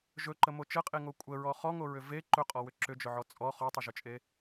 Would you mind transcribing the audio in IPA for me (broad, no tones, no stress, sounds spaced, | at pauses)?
ʒ ɵ ǃ ə m o t͡ʃ ə qʼ e ŋ o kʷʼ ə ɹ ɔ χ ɔ ŋ o ɹ ʏ v e ǃ ɵ qʼ ɔ w ʏ ǁ ʏ d͡ʒ ʊ ʕ ɔ t͡sʼ ɔ χ ɔ tˤ ʏ ʒ ʊ t͡ʃʼ e